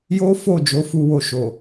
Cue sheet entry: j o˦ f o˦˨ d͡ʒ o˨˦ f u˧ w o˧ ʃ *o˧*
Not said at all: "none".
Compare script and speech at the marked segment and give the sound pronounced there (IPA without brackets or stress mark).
o˨